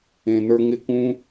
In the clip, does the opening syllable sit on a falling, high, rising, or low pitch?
low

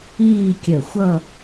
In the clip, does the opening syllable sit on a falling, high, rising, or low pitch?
falling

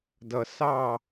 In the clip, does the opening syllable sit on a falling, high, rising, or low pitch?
low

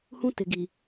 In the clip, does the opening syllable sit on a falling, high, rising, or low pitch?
high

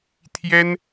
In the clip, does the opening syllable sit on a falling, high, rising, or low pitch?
high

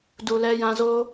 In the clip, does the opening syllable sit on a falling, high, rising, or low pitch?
low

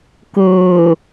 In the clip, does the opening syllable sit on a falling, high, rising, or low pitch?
low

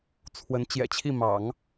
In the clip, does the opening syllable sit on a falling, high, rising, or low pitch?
rising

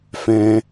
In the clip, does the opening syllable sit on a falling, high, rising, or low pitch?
high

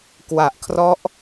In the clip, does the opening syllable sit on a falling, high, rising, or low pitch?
low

